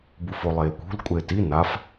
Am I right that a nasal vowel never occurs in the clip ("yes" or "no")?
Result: yes